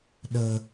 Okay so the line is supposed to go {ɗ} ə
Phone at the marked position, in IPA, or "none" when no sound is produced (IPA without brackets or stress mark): ɗ